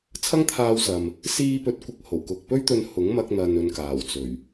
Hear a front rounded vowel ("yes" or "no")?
no